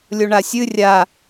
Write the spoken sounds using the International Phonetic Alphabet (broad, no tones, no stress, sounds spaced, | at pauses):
lʲ o ɳ a sʲ ɨ rʲ a